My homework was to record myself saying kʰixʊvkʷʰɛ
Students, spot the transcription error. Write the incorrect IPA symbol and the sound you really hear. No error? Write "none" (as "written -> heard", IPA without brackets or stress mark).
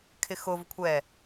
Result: i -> ɪ